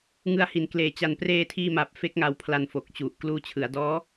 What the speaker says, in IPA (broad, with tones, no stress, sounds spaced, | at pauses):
ŋ ɯ˧ a̯ h i˩˦ n k l eː˨˩ t͡ɕ a˨˩ n p r eː˧ tʰ iː˧ m a˨˩ p̚ f e˦˥ k̚ ŋ a˧ w pʰ l a˧ n f o˨˩ k̚ t͡ɕ u˨˩ ʔ k l uː˧ t͡ɕʰ ɯ˩˦ a̯ d ɔː˦˥